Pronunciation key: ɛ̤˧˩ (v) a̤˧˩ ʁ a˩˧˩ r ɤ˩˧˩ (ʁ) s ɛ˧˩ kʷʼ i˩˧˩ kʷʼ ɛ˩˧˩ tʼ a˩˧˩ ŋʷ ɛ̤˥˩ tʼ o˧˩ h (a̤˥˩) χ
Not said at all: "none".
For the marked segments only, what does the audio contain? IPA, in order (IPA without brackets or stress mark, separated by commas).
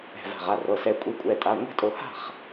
v, none, a̤˥˩